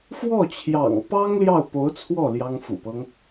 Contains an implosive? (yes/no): no